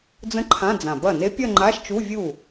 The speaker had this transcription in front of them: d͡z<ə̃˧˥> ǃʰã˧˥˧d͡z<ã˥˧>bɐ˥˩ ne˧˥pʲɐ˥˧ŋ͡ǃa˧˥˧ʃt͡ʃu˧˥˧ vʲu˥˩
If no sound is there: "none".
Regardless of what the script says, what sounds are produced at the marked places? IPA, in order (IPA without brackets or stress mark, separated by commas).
ə̃˧˥, ã˨˩